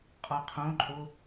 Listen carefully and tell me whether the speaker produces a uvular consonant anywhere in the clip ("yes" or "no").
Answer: yes